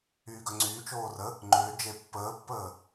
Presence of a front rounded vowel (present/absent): present